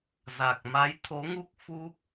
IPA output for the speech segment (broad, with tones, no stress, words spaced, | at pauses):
za˨˩k̚ ma˨˦jt̪ʰo˨˦ŋu˦˥k̚ fu˦˥k̚